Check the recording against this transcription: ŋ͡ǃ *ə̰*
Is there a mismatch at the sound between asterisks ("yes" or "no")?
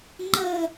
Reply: yes